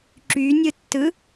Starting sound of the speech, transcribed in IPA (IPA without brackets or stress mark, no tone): ǁ